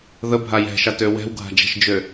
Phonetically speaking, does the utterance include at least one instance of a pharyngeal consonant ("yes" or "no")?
no